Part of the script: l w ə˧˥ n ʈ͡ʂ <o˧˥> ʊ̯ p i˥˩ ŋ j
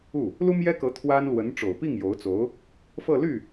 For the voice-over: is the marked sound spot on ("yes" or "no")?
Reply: no